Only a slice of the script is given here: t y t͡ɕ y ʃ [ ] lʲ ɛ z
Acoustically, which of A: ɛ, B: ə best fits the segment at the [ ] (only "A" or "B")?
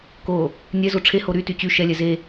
A